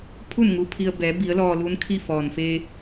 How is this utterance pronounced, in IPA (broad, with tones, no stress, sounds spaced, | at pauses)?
pʰ u˥˨ n ŋ u˧ pʰ i˧ ə̯ b ɛː˩˧ b i˩˧ ə̯ l ɔː˧ l u˧˥ n kʰ i˥˨ f ɔː˩ n f e˧